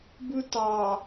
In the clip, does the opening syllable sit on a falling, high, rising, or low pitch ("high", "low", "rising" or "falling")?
high